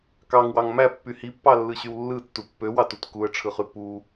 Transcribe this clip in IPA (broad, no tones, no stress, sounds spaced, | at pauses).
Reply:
k ɑ ŋ w ɑ ŋ m æ pː y h i pː ɑ lː ɯ ɕ y w lː ɯ tː u pː ø w ɑ t u t k u ə̯ ʈ͡ʂʰ ɯ χ y p u